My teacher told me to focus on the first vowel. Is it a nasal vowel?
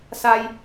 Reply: no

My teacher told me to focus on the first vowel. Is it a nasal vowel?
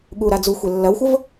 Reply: no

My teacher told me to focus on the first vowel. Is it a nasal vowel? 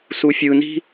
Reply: no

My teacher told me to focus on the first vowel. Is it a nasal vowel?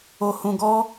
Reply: no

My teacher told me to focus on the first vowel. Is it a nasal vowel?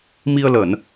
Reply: no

